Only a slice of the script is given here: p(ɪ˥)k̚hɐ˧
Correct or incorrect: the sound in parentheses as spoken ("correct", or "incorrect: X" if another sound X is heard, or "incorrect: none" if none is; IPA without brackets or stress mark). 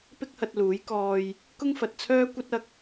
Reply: correct